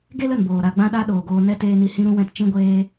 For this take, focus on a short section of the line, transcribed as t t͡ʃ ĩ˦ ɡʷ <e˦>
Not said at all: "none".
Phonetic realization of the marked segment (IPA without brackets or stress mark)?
eː˦